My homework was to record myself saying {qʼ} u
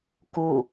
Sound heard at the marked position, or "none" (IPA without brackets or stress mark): k